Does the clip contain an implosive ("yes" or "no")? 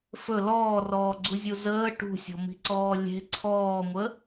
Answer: no